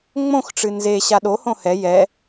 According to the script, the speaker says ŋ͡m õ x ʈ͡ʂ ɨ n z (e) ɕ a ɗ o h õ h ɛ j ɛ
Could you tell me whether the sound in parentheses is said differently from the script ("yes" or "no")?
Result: no